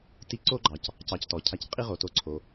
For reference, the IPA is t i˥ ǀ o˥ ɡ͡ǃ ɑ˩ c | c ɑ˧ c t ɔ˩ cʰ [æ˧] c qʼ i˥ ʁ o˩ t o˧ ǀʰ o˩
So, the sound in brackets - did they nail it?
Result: no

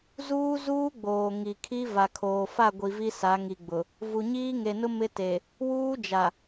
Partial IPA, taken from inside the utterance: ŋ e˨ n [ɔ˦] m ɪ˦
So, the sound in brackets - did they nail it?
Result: no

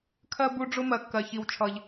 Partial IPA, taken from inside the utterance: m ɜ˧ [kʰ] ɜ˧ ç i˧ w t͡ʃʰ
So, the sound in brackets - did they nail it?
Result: no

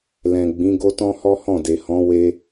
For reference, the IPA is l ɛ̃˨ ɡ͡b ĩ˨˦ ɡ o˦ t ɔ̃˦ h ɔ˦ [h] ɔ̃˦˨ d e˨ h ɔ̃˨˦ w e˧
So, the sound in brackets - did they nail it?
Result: yes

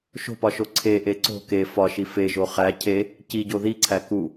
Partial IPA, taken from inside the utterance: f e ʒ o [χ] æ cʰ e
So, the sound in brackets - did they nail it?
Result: yes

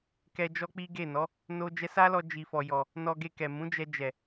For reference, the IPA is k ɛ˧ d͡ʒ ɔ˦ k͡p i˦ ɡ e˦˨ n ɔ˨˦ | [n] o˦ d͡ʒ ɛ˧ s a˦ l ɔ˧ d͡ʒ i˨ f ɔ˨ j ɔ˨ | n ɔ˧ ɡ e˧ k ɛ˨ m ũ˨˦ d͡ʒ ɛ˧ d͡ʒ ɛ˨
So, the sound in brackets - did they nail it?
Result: yes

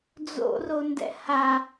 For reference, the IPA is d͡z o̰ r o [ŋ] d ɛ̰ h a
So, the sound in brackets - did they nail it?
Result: no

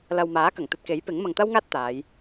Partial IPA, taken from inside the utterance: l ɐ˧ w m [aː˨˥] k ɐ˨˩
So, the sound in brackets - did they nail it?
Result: yes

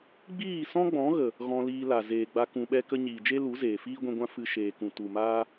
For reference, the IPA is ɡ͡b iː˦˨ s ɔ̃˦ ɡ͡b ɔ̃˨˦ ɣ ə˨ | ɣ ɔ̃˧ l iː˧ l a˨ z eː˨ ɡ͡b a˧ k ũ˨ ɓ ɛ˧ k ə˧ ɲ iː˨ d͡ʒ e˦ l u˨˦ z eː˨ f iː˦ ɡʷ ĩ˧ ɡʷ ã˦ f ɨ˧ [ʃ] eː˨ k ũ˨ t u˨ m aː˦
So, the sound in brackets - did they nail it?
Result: yes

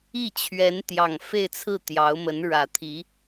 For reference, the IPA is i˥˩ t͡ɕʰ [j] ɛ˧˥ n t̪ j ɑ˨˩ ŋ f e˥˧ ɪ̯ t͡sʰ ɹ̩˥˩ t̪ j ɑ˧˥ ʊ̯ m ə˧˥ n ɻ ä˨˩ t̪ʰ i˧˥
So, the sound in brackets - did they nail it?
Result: no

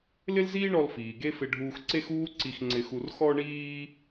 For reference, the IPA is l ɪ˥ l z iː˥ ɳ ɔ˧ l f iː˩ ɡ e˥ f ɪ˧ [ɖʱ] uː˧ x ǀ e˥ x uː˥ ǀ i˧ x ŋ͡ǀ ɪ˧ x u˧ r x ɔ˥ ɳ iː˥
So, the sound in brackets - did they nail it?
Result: yes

